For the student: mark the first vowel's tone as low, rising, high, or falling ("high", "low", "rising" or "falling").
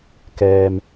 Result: low